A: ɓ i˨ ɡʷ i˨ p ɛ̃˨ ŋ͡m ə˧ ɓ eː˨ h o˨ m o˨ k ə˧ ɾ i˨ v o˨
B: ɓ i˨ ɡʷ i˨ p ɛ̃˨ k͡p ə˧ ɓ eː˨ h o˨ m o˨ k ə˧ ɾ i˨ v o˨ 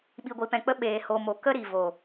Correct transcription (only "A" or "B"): B